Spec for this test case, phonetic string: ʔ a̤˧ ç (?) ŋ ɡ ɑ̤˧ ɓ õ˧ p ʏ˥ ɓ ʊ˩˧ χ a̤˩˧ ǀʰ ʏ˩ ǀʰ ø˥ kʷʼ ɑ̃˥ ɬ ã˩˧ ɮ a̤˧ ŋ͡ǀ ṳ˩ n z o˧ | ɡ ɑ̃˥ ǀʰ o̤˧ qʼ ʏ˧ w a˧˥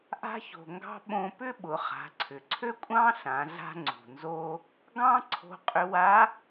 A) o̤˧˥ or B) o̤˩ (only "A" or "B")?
B